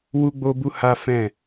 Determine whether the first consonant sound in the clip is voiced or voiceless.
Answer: voiced